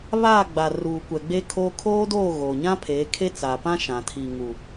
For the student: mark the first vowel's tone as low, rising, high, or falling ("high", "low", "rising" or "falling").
falling